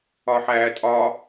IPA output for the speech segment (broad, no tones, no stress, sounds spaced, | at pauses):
ɒ ħ æː tʼ ɒ